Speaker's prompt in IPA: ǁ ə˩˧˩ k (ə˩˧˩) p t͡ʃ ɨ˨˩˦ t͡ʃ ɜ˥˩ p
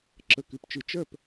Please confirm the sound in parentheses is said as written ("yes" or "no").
no